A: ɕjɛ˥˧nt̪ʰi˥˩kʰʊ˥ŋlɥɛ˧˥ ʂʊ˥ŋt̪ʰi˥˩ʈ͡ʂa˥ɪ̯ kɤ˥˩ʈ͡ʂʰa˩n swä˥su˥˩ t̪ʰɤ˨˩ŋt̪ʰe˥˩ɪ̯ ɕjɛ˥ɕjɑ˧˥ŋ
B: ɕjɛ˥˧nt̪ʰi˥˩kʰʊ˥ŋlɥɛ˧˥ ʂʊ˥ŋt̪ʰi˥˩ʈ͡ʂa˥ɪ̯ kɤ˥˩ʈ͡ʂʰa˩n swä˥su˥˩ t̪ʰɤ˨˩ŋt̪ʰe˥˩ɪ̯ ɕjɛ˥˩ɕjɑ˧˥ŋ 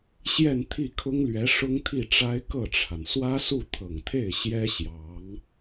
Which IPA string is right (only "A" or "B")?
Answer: A